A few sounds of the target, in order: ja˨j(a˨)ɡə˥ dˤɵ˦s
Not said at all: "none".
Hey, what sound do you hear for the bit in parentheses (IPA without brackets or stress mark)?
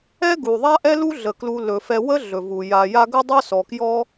a˦